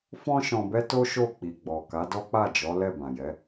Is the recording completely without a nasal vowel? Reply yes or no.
no